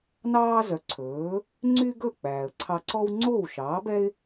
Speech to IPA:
n ɑː˥ z œ˩˥ ǀʰ ɵː˩˥ | ŋ͡ǀ y˥ ɡ ɵ˥˩ k͡p æː˩ ə̯ ǀʰ ɑ˧ ǀ ɔ˥ w ŋ͡ǀ oː˥˩ w ʃ ɑː˩˥ b ɛ˥ ɪ̯

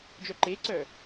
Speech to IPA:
d͡ʒ œ ǃ e ǀ œ

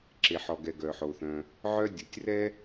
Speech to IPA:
ǁ e˩ ħ ɔ˩ ɡ ɛ˩ ɡ œ˩ ħ o˩ θ œ̃˩ | ʕ œ˥ dʲ o˩ tʲ r ɛ˥

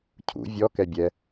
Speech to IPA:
cʰ ṵ vʲ ɔ k ɛ bʲ ɛ

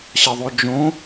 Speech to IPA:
ɕ ɐ ðˤ o d͡ʒ õ

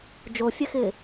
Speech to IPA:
d͡ʒ o fʲ ɛ x ɪː

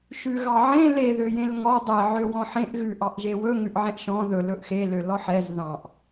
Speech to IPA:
ʃ ʉ ɣ ɑ ʕ ẽ l e ð ø j ẽ l ŋ ɔ dˤ e ʕ ø w ɔ̃ ħ ẽ ʔ ɣ ʉ ʔ ɑ ʔ ʒ e w ɵ ŋ ʉ ʔ ʕ ɛ̃ ʔ ʃ ɔ̃ ð ɵ l ɵ ʔ x e l ø l ɔ ħ ɛ z ð ɑ̃ ʔ

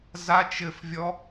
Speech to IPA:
z a t͡ʃ ɘ f vʲ ɔ

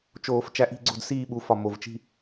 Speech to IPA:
t͡ʃ oː˨˩˦ f t͡ʃ æ˨˥ ʔ i̤˦˨ ɡ͡ǀ o̤˦˨ d s iː˦˨ ɓ u˨˥ f ɒ˨ m o˨ v t͡ʃ i̤˦˨

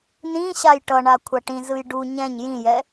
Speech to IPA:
n ĩ ɕ a j ʈ ʌ ɳ a kʷʰ a ʈ ĩ z ɯ j ɖ u ɲ ɛ̃ ɲ j ĩ j ɛ

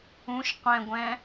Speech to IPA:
ũ ʃ qʷ ɛ̃ ɡʷ ɛ̃

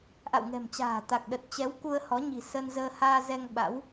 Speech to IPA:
ʔ a̰˧˨ w ŋ ɛ̤˨˩ m t͡ɕ a̤ː˨˩ t̪ a˨˩ k̚ ɗ ə˨˩ t̚ t͡ɕ ɛ˨˦ w k u˧ ə̯ h ɔ˨˦ ɲ i̤˨˩ s ə˧ n z əː˧ h aː˧ z ɛ˧ ŋ ɓ a̰˧˥ w

